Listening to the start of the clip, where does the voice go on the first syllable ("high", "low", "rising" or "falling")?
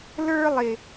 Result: high